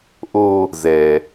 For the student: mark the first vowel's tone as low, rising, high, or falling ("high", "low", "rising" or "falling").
low